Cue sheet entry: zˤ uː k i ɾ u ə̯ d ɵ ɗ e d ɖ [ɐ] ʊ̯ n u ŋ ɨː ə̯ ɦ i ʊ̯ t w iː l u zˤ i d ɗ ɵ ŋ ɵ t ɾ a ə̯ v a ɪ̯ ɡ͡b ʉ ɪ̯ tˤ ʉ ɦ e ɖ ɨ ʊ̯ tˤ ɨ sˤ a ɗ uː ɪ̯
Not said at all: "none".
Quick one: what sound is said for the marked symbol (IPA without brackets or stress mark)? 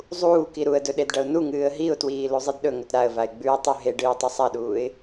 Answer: ɐ